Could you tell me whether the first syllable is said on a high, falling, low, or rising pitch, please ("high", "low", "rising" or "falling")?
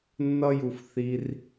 high